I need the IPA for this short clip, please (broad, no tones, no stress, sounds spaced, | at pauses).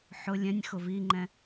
ħ ʊ lʲ ɛ̃ nʲ x ʊ v i ŋ͡ǃ ɛ̃